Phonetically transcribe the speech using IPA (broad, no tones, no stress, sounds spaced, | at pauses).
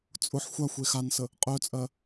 t͡sʼ ʊ ħ xʷ a xʷ e x a n s ə | qʼ œ t͡sʼ ɜ